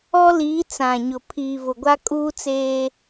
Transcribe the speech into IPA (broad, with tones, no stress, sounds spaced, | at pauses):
ɔ˦ l iː˨˦ t͡s ã˨ ɲ ʊ˨ pʰ iː˨ v ʊ˨ ɡʷ a˦ kʼ uː˦ t͡s eː˦